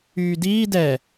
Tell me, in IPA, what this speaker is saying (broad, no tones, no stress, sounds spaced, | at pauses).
yː d iː d ɛ